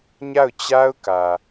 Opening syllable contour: falling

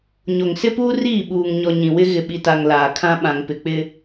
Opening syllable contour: low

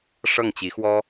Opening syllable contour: falling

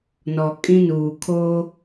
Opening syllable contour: low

